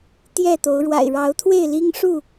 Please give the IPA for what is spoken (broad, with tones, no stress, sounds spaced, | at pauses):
t̪ j ɛ˥˨ t̪ o˨˦ ʊ̯ ɻ w a̰˨˩ ɪ̯ ɻ ɑ˨˦ ʊ̯ t̪ʰ w e˥˨ ɪ̯ l i˦ ŋ ʂ u˥˨